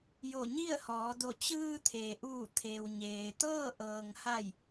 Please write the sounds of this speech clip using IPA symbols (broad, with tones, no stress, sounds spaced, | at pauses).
j o˧˩ ɲ i˥˨ ə̯ h ɔː˩˧ d o˧˩ t͡ɕ ɯː˧ t̪ʰ e˩ ʔ uː˧˩ t̪ʰ e˩ w ɲ eː˩ t̪ ɤː˥˨ ʔ ɤː˩ ŋ h a˧˩ j